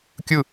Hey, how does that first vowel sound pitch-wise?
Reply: falling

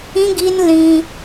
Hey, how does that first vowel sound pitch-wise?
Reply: high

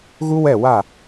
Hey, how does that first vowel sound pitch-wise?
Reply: high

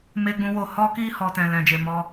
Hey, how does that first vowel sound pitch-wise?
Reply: high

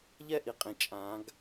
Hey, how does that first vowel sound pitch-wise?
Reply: falling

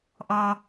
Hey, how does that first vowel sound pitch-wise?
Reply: high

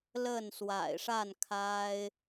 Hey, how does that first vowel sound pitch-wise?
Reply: falling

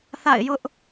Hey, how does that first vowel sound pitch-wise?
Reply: falling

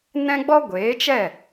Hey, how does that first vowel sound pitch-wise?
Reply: high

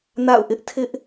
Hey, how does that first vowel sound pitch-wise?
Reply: falling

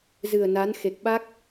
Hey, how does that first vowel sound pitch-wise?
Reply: low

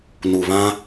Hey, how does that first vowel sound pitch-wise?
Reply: low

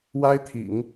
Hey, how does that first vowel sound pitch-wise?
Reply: high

